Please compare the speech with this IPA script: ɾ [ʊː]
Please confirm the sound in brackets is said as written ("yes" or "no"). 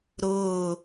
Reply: yes